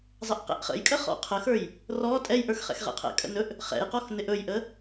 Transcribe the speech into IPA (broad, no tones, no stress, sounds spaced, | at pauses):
zˤ ə ʔ q ɛ̰ ʔ χ ə̰ j kʼ ə χ ɔ̰ qʰ ə x ə˞ j | r ɔ tʼ ɛ j ʔ ə˞ x χ ɛ̰ x ʁ ɛ̰ qʰ ɛ̰ kʼ ə̰ n ɵ ʔ | χ ɛ̰ j q ɔ x n ɪ ʔ ɵ j ʔ ə